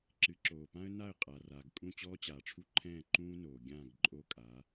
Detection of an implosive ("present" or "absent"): absent